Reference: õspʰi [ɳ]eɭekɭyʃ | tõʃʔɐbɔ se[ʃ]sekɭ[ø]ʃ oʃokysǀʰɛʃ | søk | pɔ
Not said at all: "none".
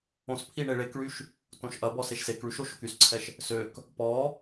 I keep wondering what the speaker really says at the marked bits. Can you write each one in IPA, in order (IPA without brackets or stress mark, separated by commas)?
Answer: ɳ, ʃ, y